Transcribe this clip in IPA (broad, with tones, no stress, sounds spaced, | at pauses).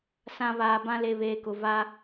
s ã˨ β aː˨ b ã˦ l e˨ β eː˨ k ʊ˨ v a˦